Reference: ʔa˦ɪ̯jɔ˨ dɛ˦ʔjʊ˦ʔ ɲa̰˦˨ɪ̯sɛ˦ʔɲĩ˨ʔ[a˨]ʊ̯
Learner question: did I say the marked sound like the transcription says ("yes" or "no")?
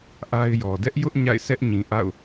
no